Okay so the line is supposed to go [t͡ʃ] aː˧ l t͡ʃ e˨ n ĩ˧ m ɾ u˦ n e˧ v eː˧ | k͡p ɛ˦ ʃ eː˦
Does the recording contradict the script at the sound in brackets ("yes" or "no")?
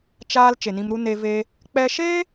no